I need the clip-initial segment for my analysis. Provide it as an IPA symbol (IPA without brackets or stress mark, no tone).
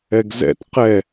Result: ɛ